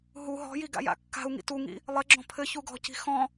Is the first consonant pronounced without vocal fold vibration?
no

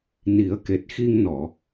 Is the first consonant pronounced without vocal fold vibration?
no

